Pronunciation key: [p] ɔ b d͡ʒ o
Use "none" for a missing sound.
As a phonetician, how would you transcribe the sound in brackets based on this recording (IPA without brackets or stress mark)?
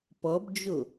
p